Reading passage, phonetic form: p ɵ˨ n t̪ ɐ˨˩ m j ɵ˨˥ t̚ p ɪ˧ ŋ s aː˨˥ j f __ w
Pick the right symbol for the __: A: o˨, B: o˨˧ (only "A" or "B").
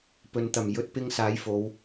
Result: B